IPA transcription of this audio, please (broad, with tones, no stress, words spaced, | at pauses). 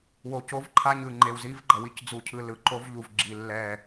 wo˨ co˦vǃʰa˦ ɲɯ˨ŋ͡ǃe˨w zi˦vɡ͡ǃʌ˨ wi˦cd͡zu˨cʰɯ˨ lɯ˨ǃo˦v ʎu˨vɡ͡ǁi˨ lːɛ˦˨